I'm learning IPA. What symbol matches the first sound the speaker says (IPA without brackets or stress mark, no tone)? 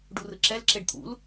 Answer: ɖ